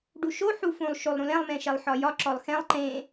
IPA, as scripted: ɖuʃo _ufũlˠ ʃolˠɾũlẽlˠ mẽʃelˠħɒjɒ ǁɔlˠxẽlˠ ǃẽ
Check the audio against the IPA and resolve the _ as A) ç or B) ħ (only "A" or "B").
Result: B